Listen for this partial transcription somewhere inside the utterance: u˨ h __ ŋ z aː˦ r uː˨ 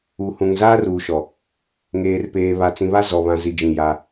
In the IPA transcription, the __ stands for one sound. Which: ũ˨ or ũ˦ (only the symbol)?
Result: ũ˨